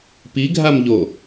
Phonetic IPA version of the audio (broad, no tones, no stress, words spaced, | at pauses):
piɡʱam ʎo